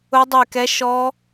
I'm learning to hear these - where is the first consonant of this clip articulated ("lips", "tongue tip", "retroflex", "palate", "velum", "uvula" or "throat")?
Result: tongue tip